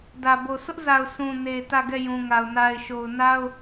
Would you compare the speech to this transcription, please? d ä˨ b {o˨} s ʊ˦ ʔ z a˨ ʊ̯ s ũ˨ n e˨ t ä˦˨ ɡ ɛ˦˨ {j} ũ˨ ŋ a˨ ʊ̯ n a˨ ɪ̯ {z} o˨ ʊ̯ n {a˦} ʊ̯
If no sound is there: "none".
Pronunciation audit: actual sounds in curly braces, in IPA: o˨, j, ʃ, a˦

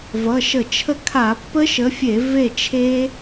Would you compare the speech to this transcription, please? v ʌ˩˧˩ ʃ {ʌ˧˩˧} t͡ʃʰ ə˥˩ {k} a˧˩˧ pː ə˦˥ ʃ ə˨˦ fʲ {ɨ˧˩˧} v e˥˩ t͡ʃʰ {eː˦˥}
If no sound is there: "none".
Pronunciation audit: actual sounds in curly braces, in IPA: ə˧˩˧, kʰ, e˧˩˧, e˦˥

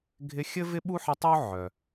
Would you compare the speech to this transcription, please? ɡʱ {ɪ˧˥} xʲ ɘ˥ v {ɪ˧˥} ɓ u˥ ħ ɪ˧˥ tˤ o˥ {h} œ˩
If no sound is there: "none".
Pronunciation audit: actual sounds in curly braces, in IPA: ɪ˧˥, ɪ˥, ʕ

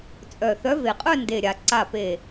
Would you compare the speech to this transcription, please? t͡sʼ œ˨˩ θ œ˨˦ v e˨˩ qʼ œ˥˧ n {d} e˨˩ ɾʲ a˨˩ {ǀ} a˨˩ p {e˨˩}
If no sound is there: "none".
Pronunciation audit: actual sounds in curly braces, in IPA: d, ǀ, e˨˩

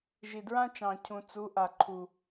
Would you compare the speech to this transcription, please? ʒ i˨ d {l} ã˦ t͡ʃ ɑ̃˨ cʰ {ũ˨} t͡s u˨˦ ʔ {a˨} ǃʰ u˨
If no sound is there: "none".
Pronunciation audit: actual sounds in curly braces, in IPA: ɹ, ũ˨, a˨

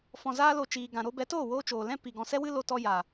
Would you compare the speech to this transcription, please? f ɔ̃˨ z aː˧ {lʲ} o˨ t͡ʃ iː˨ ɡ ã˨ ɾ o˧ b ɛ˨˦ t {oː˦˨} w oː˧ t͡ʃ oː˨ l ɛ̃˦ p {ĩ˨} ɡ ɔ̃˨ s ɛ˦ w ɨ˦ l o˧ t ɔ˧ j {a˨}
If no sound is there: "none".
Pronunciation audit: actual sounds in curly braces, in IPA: l, oː˦˨, i˨, a˨

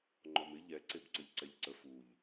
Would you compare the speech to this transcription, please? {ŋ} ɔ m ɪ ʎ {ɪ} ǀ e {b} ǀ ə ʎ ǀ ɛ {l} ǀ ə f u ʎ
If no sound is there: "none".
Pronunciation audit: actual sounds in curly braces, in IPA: ŋ͡ǃ, ɛ, b, ʎ

